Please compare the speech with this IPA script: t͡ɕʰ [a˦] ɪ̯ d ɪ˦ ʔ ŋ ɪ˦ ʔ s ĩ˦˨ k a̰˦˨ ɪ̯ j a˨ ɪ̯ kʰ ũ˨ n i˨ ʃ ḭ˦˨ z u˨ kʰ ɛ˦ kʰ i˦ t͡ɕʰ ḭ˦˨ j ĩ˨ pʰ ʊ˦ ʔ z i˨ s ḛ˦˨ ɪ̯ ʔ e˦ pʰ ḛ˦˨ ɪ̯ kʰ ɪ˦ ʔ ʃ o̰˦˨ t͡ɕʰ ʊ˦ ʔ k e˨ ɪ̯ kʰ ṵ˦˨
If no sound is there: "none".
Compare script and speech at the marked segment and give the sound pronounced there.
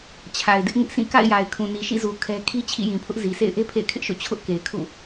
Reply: a˨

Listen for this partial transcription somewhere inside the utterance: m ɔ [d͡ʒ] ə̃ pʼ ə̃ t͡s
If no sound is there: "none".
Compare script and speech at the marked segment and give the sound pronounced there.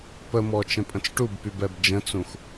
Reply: t͡ʃ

